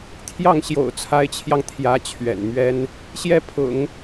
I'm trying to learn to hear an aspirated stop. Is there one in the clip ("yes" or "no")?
yes